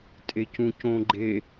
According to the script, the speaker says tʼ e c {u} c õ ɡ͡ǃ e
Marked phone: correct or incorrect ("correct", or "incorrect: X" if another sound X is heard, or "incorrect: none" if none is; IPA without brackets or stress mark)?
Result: incorrect: ũ